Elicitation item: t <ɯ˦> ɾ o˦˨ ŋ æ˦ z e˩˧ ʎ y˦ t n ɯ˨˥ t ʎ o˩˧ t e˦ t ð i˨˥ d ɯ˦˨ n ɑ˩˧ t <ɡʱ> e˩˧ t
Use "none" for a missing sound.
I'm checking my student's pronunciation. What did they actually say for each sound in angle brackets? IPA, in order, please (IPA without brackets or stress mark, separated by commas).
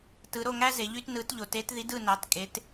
ɯ˩˧, kʼ